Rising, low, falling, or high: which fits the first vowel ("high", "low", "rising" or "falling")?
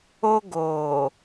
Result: high